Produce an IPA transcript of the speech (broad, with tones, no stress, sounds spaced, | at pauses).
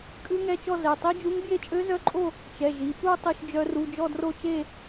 kʼ ʉ˦˥ ŋ ɛ˧˥˧ t͡ʃ ɔ˥˧ z ɛ˩˧˩ tˤ i˦˥ d͡ʒ u˦˥ ŋ b j e˥˧ t͡ʃʼ ø˦˥ z œ˦˥ ǃʼ o˥˧ | t͡ʃ ɛ˩˧˩ ʒ i˩˧˩ p u˥˧ tˤ ʉ˥˧ ʃ d͡ʒ œ˦˥ r u˧˥˧ d͡ʒ ɔ˥˧ d r o˥˧ t͡ʃ e˥˧